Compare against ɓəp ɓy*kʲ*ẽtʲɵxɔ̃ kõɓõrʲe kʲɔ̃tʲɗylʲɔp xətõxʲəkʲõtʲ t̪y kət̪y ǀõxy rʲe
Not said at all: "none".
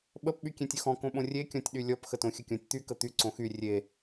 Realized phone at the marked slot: kʲ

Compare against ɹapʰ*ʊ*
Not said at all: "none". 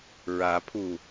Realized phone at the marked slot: u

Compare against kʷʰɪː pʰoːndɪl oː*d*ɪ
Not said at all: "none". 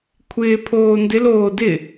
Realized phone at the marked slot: d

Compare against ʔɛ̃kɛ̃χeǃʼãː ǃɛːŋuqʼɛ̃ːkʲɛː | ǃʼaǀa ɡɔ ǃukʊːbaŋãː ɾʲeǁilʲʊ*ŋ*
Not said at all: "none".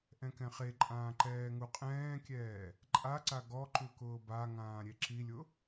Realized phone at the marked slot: none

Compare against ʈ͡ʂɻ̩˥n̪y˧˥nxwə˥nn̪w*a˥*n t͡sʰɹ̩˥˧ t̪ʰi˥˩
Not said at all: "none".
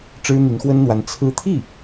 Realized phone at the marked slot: a˧˥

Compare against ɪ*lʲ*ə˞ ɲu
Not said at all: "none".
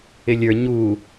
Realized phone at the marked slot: lʲ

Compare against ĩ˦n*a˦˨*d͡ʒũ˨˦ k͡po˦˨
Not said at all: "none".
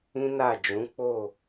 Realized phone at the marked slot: a˦˨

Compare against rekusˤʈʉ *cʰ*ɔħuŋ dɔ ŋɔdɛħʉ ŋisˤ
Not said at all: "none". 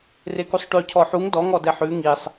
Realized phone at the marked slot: cʰ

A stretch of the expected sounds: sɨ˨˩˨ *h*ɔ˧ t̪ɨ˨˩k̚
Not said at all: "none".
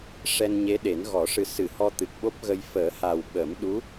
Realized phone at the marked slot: h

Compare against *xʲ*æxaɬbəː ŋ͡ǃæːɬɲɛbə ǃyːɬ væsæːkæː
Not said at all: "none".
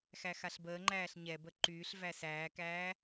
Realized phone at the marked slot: x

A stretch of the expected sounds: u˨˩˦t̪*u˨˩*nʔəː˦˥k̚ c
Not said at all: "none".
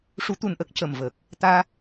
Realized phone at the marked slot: u˨˩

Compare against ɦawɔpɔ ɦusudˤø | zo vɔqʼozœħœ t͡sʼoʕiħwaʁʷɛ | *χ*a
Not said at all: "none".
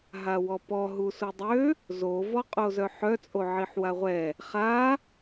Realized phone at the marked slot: χ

